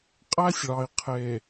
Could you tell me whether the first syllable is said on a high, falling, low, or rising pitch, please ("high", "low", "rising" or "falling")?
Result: high